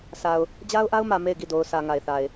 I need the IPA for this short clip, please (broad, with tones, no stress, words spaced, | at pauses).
sʰa˨ʊ̯ | d͡ʑa˦ʊ̯ʔa˦ʊ̯mä˨ me˦˨ɪ̯ɡi˦˨ do˨ʊ̯sʰä˨ ŋa˨ɪ̯θa˨ɪ̯